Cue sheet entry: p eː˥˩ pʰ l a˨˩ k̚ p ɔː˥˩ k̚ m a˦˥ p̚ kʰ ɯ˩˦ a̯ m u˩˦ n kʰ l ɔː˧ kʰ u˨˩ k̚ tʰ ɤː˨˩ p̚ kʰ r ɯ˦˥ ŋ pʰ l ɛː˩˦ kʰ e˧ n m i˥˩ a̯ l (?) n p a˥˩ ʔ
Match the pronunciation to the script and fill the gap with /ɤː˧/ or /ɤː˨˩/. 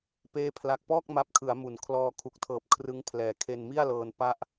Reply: ɤː˧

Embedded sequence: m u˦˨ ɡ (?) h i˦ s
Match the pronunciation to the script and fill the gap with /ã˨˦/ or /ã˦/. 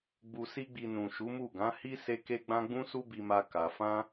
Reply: ã˨˦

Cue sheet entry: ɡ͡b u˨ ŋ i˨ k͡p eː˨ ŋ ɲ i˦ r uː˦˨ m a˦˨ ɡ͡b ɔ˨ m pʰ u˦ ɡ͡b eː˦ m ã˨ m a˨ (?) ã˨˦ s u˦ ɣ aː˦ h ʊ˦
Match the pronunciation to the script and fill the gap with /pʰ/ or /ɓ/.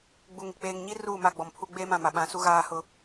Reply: ɓ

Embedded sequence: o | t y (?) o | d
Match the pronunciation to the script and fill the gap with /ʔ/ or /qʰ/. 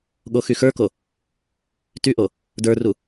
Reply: ʔ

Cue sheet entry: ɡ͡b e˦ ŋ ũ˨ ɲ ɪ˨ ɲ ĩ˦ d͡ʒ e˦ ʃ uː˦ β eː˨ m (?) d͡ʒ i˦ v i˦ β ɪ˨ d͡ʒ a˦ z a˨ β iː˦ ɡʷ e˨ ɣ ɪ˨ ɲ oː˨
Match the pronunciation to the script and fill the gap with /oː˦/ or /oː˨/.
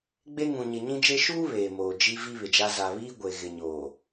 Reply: oː˨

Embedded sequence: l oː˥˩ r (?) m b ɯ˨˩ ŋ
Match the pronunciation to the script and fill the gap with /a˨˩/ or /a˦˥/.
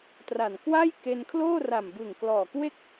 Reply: a˨˩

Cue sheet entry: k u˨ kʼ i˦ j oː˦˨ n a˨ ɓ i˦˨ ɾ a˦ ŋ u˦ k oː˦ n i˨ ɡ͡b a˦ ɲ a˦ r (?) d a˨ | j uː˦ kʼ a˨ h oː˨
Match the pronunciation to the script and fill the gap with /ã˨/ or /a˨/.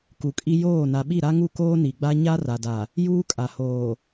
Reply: a˨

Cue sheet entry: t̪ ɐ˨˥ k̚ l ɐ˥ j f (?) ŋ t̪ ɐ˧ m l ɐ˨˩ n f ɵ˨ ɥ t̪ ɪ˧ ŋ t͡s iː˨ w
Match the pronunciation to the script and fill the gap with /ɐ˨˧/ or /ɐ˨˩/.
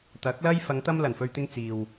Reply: ɐ˨˧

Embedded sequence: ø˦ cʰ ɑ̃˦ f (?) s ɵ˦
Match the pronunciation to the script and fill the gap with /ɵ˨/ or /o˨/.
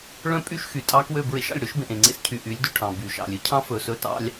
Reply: ɵ˨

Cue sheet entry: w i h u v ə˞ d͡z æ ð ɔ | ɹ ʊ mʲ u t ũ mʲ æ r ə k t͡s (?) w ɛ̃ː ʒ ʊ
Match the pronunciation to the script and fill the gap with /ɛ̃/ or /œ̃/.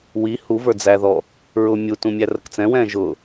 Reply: ɛ̃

